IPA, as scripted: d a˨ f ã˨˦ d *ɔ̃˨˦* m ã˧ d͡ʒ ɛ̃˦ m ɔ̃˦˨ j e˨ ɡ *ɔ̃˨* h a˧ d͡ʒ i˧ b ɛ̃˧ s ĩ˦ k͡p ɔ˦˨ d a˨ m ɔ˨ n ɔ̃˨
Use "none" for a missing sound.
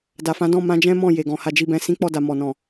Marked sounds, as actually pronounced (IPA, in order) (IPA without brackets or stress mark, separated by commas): ɔ̃˦˨, ɔ̃˨